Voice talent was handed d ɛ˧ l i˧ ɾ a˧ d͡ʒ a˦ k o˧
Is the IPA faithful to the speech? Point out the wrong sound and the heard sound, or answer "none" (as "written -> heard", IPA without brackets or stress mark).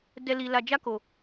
ɾ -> l